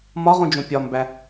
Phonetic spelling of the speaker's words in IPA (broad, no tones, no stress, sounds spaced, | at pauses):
m ɒ ʁ ũ d͡ʒ õ pʲ ɒ m b æ